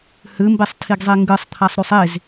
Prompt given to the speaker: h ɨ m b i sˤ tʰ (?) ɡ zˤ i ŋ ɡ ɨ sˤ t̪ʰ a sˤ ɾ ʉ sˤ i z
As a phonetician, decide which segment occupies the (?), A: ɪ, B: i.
B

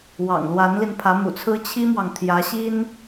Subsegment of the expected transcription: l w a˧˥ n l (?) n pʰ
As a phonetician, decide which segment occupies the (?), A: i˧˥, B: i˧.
B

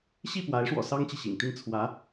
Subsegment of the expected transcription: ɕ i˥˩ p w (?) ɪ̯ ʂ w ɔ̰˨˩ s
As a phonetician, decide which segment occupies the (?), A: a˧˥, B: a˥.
A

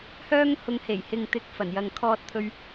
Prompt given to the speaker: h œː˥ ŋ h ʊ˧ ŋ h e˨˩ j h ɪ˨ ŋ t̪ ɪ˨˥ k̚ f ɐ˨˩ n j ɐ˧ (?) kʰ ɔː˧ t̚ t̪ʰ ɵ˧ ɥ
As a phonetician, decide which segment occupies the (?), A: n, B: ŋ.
B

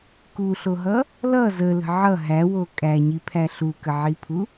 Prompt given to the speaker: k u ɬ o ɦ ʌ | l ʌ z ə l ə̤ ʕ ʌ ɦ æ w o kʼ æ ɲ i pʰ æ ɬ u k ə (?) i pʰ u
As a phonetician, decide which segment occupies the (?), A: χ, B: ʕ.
B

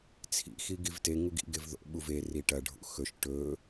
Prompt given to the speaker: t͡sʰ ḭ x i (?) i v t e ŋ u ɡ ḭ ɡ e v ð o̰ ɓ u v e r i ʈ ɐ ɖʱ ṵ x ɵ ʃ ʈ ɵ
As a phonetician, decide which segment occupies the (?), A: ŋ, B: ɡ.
B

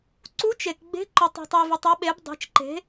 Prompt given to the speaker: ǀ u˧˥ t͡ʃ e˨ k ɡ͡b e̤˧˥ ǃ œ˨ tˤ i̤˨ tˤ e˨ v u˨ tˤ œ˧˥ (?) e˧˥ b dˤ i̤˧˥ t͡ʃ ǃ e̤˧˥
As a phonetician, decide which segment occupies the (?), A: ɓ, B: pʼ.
A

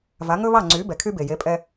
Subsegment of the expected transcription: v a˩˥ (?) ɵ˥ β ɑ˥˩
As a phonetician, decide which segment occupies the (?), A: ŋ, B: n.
A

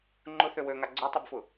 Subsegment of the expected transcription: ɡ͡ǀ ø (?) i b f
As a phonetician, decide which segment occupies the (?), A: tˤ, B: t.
A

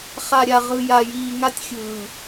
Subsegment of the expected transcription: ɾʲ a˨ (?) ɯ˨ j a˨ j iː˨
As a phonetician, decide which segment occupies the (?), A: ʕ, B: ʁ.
B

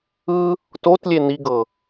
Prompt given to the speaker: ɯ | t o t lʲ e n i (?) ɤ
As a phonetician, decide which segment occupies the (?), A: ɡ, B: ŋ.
A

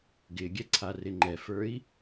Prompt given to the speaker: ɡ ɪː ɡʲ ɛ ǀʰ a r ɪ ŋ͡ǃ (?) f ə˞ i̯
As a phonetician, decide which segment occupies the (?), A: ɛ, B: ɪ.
A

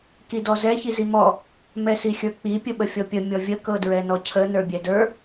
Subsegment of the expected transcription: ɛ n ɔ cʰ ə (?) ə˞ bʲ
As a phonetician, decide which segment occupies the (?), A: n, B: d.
A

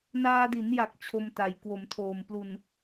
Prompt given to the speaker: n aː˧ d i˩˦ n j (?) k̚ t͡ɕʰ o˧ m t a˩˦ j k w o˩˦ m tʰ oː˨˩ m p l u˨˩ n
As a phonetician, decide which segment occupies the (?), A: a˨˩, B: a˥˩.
A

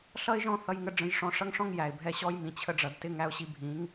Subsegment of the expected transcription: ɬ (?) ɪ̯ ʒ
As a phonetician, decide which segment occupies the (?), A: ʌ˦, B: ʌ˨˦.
A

